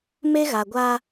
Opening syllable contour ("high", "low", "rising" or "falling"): high